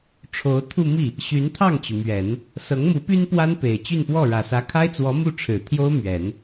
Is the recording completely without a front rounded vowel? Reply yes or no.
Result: no